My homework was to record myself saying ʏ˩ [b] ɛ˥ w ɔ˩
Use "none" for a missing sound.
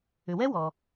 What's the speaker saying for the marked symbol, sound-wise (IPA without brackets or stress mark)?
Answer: w